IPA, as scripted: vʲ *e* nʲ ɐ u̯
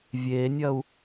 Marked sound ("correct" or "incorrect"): correct